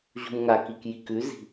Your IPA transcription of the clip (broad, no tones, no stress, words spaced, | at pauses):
ʑṳmŋakik jikʉzi̤